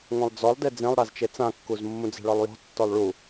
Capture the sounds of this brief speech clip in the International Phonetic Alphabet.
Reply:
ŋʷ ɛ̃ lˠ d͡z ɔ lˠ d e d͡z ẽ lˠ ɾ a z t͡ʃ e t͡s ã kː u z mː ũ d͡z ɛ̤ ɭ ɒ lˠ j ɔ̤ tː ɔ lˠ ɭ u

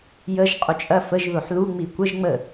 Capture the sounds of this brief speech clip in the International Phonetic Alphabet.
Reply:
j ə ʒ qʼ u t͡ʃʼ ɐ f ə ʒ ð o ħ l u ŋ͡m i kʷ ə ʒ ŋ͡m ə

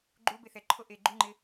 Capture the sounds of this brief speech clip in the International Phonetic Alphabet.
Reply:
ɡ͡ǃ u b e θ ɛ ǃʰ o ʔ e ɡ͡ǃ u ŋ͡ǃ ɪ

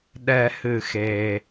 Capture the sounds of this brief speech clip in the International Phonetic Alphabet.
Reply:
ɗ ɛ˨˩˦ h ɨ˩ x e˩

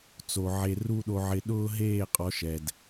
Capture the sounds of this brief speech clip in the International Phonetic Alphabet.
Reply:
t͡s o˧ ʕ e˦ r u˦ ɗ o˧ ʕ ɪ˧ ɗ ʊː˦ ɦ eː˦˨ qʼ ɔ˨˦ ʃ ɛ˨ d

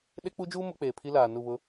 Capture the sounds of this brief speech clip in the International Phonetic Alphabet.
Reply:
ɗ e˦ k͡p u˦ d͡ʒ uː˦ m ʊ˨˦ k͡p eː˨ pʰ i˦ l aː˨ n u˦˨ β ʊ˦

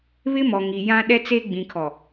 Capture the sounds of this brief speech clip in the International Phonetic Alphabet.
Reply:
β ɪ˦ m ɔ˨ ŋ i˨ j ã˦ ɗ ɛ˦ t͡s e˦ ɡ͡b ĩ˨ kʰ ɔ˨

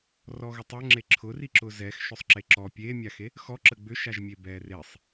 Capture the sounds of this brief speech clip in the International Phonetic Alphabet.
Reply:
r ɔ ɣ ʊ tˤ ʏ ŋ͡ǁ e ǁʰ ʊ r i ǁ ʊ z ɛ x ʃ ʏ sˤ ǁ e ǁ ɔ pʲ e mʲ a x e | x ɔ ǁ ə ɡ͡b ʏ ʃ a ʒ mʲ e b ɛ r e sˤ

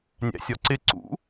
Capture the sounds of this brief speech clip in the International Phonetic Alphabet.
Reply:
nʲ æ̰ sʲ ɒ ǀ ɪ ǀ ṵ

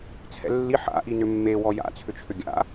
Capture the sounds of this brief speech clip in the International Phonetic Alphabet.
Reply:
t͡sʰ ɛ̰ lː i ħ a̰ ʔ i n ʏ mː e w ɔ j a̰ t͡sʰ ʏ t͡ʃʰ ʏ ɡʲ a̰

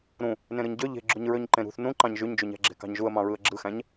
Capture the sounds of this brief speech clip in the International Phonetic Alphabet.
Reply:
ɾ ũ | n ẽ ɾ ɯ ɲ ɟ ø ʎ e̤ ɡ͡ǁ u ɲ ɹ ø ɲ ǃ ẽ ɾ ṳ θ n ũ ǃ ɑ̃ ɲ ʒ y ɲ d͡ʒ y ɲ æ̤ ɡ͡ǁ e̤ k ɑ̤ ɲ ʒ u ə̯ m ɑ̃ ɹ ɯ ə̯ ɡ͡ǁ ɯ x æ̃ ɲ

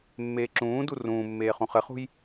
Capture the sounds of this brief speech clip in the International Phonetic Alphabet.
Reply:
mː eː ǁ ũː d u r ũː mː eː χ ũ χ ɘ χ ṳ j

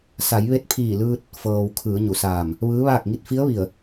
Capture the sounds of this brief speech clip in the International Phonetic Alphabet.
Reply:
s a˩˧ j ʋ e˧ t̚ pʰ iː˧˩ l ɯː˧ t̚ | f ɤː˩ w kʰ ɯː˩˧ ɲ u˩ s aː˧˩ m | ʋ ɯː˧˥ ʋ aː˥˨ k̚ ŋ i˥˨ t̚ f i˧˥ ə̯ ʋ i˧˩ ə̯

